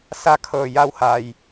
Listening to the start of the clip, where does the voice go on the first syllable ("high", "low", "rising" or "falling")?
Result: falling